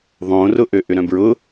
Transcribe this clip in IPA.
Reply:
ðˤ õ r ʊ ʔ ø ʔ ʏ ɾ œ̃ b ɹ ʊ

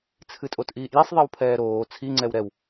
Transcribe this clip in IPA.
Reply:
t͡sʰ ɨ tʼ o t ʔ iː ʔ j i sˤ ðˤ i w pʰ ɛː ɾ oː t͡sʰ i ŋ͡ǀ ɛ w ɾ ɛ w

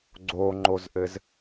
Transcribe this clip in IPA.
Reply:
ɡ͡ǀ o ŋ͡ǃ o z ʔ ɘ z

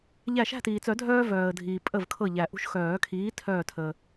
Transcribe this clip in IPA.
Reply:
ʎ æ˧˩ ʃ æ̤˥˨ t iː˩ t͡s œ˨˩˦ dʱ œː˦ v œː˩ ə̯ dʱ iː˩ pʼ ə˧˩ v kʰ ɤ˧˩ ʎ æ˩ ʔ ṳ˦ ʃ x œː˨˩˦ kʰ iː˨˥ tʰ œː˧˩ tʰ əː˩

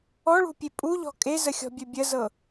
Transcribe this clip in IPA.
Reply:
ɔ ɭ ṳ pʲ e pʼ u ʎ ɔ̤ kʼ e z ə xʲ ɔ̤ bʲ ɵ bʲ ə z ɤ

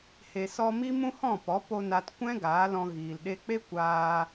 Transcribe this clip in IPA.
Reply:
h e˨ s ɔ˧ m i˦ m ũ˦ h ɔ̃˦˨ p ɔ˨˦ p o˧ n a˧ t kʷ ɛ̃˦ ɡ aː˨˦ l ɔ̃˧ ɣ iː˨ l ɗ e˧ k͡p e˦ kʷ aː˧

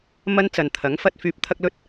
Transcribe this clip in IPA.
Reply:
m ɐ˥ n t͡s ɐ˨ n t̪ʰ ɐ˨˥ ŋ f ɐ˥ t̚ f yː˧ p̚ t̪ʰ ɐ˥ k̚ l ɵ˥ t̚

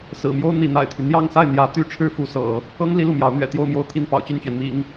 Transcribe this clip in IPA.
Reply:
s ɹ̩˨˩ m j o˥ ʊ̯ n̪ i˧˥ n̪ a̰˨˩ ɪ̯ t̪ʰ y˦ n̪ j ɑ˥˧ ŋ s a˥˩ ɪ̯ n̪ j ä˧˥ t̪ y˥ ʈ͡ʂʰ ɻ̩˥ f u˧˥ s ɤ̰˨˩˦ | ɤ˥ ŋ l i˥ l u˥˩ m j ɑ˧˥ ʊ̯ n̪ ɥ ɛ̰˨˩ t̪ j o˥˧ ʊ̯ m j o˥˧ ʊ̯ t̪ʰ i˥˩ n p ɑ̰˨˩ ʊ̯ t͡ɕ y˥˩ n t͡ɕ ɥ ɛ˩ n m ḭ˨˩˦ ŋ

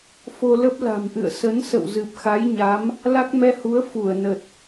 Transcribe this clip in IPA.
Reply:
f o˧ l ə˦˥ p̚ l a̤˨˩ m ʔ ɨ̰˧˨ ə̯ s ə˨˦ n s ə̰˧˨ w z ɨ˨˩ p̚ x a˨˦ j ɲ a˨˦ m | l a˦˥ k̚ m ɛ˧ h u˨˦ ə̯ f u˧˩ ə̯ n ə˨˩ t̚

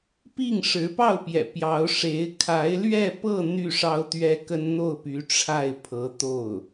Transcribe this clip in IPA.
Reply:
p i˥˩ ŋ ʂ ɻ̩˧˥ p ɑ˥˩ ʊ̯ p j ɛ̰˨˩ p j ɑ˧˥ ʊ̯ ʂ e˧˥ ɪ̯ kʰ a˧˥ ɪ̯ l ɥ ɛ˥˧ p ɤ˥˧ n̪ y˥˩ ʂ ɑ˥ ʊ̯ t̪ ɥ ɛ˥ k ə˥ n n̪ o˥˩ ʊ̯ p y˧˥ ʈ͡ʂʰ a˥˩ ɪ̯ pʰ ɤ˧˥ t̪ o˥˩ ʊ̯

